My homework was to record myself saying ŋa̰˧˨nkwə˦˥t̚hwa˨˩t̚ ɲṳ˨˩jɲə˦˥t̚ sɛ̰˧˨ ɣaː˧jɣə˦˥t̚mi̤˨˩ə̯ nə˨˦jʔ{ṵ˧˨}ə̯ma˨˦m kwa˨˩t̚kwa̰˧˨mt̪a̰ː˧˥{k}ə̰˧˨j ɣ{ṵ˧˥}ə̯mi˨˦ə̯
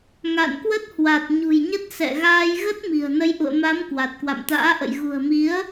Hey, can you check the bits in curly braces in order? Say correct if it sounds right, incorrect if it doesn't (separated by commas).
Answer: correct, incorrect, incorrect